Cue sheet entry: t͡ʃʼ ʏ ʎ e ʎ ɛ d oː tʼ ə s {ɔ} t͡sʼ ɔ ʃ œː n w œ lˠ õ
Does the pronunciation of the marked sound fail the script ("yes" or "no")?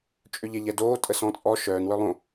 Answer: yes